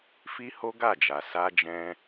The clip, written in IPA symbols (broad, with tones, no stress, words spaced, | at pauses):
fi˦ho˦ɡa˦˨d͡ʒa˨ sa˧d͡ʒɛ̃˧